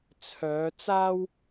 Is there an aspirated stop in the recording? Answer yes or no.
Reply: yes